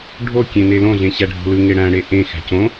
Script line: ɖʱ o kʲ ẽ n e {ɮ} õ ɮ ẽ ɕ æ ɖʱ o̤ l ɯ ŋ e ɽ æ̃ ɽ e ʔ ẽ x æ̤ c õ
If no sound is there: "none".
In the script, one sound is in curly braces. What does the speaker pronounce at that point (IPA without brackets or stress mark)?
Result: l